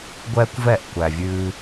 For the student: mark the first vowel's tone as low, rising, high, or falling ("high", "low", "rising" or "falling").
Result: high